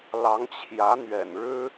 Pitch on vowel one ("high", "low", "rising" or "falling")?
rising